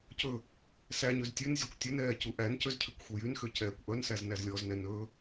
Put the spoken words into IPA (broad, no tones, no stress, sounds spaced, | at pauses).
c ɵ | s æ ɲ ø z tʲ ʉ n zʲ ɵ kʷ tʲ ɵ n ɛː c u ʔ æ n c ø z cʰ ʉ kʷ xʷ ɛ j y n x ø c ɛː kʷ ʔ œ n s æ z n æ z lʲ ɔ z n ɛ n ɵ